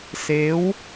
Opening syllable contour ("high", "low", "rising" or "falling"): rising